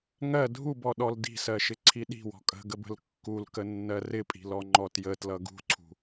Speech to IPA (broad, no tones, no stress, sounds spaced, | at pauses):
ŋ ɜ dʱ u b ɔ ɗ ɔ l d i̤ s ɜ ʃ ɪ ǀʰ i ɗ i̤ w ɔ̤ kʼ ə̤ ɡ ə b ə̤ l kː u l k ə nː ɜ r ɪ pʼ i̤ l ɔ ŋ͡ǃ ɔ t j ə t l ʌ ɡ ṳ ǀʰ ṳ